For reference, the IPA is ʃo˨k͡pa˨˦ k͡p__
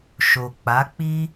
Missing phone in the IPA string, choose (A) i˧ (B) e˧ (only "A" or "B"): A